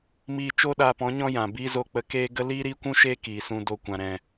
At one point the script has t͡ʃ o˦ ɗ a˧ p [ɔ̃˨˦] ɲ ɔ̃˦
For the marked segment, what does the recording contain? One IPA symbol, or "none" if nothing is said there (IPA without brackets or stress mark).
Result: ɔ̃˨˦